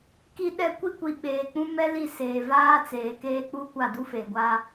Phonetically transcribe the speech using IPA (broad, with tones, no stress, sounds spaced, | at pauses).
k i˦ ɗ ɛ˦ kʷ i˦ kʷ i˨ ɓ eː˨ k͡p ũ˦ m ɛ˦ l i˦˨ s eː˨ v aː˦ t͡s eː˨ k eː˦ k͡p u˦ kʷ a˦˨ d u˦ f e˨ ɡʷ a˦